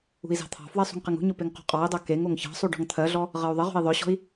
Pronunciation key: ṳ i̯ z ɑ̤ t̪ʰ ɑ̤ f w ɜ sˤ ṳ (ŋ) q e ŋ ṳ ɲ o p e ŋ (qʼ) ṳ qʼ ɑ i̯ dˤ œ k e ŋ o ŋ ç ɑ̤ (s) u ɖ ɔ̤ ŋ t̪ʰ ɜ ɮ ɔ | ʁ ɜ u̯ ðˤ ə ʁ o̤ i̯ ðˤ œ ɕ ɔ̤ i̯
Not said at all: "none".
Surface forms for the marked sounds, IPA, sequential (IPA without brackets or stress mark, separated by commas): ŋ, q, sˤ